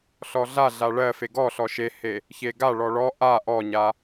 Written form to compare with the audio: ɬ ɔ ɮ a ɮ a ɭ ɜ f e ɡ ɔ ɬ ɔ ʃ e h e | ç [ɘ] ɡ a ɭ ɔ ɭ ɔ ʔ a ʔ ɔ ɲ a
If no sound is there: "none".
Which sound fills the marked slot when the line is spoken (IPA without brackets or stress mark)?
e